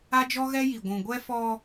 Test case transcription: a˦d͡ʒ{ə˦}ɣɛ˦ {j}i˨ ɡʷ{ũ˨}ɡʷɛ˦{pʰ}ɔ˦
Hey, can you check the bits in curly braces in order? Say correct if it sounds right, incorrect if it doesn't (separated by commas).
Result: incorrect, correct, correct, incorrect